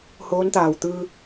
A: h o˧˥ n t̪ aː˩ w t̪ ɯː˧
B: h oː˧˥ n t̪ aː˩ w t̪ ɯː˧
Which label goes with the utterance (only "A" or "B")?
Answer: B